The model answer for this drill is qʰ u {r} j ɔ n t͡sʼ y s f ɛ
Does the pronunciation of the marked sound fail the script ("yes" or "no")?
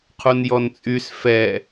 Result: yes